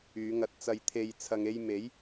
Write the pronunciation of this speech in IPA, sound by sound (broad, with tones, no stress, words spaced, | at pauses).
yː˨˧ŋɐ˧t̚t͡sɐ˧j t̪ʰe˨j t͡sʰɐ˧ŋe˥j me˨˥j